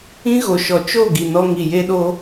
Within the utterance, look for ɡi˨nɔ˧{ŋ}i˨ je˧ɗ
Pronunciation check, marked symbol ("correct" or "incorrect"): correct